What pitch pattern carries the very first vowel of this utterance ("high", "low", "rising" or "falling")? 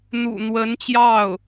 low